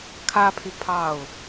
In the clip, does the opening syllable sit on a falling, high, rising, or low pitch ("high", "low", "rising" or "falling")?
high